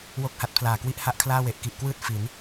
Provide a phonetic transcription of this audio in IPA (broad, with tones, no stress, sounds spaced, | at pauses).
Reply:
w o˥˩ k̚ h a˦˥ t̚ pʰ l aː˨˩ k w i˦˥ ʔ h a˥˩ ʔ kʰ l aː˥˩ w e˨˩ ʔ k i˨˩ ʔ k w ɯː˥˩ t̚ f i˩˦ n